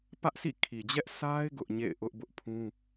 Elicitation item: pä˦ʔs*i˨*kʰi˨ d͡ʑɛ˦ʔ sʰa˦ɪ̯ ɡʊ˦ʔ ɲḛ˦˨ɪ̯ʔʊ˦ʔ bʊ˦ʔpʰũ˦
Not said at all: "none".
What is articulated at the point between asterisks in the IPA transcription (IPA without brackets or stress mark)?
ḭ˦˨